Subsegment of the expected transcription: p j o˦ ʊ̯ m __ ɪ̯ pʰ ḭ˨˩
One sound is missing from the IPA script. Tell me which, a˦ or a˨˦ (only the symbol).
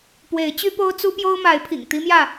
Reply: a˨˦